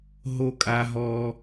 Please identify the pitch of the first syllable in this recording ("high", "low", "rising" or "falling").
low